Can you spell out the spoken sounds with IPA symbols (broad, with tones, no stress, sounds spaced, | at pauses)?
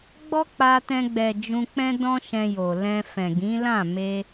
ɡ͡b ɔ˦ k͡p a˧ t ɛ̃˧ ɡ͡b ɛ˨ d͡ʒ ũ˧ k͡p ɛ̃˦ d ɔ̃˦ ʃ ɛ̃˧ j o˨ l ɛ̃˧ f ɛ̃˨ ɡ ĩ˨˦ l ã˦˨ m e˧